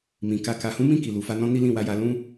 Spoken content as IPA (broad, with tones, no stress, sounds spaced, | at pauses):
m ĩ˨ k a˧ k a˨ h ũ˨˦ m ĩ˦˨ k i˨ l u˨ f a˧ n ɔ̃˧ n i˦ l ĩ˦˨ w a˨˦ j a˧ l ũ˦